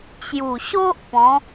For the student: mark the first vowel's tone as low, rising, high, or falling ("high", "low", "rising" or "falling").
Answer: low